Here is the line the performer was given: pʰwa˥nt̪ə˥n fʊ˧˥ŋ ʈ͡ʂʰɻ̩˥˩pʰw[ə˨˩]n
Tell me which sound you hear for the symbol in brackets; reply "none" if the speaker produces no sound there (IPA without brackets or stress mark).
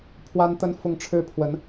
ə˧˥